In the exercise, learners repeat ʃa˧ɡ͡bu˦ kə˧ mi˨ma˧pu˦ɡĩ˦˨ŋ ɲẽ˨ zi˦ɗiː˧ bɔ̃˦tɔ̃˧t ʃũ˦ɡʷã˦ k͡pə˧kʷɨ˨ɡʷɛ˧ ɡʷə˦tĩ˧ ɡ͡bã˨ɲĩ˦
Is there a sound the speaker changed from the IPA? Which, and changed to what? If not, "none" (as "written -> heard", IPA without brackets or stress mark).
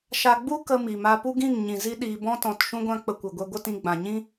ẽ˨ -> ĩ˨